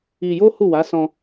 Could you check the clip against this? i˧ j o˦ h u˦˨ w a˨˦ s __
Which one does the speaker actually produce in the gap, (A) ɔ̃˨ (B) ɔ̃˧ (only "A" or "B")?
B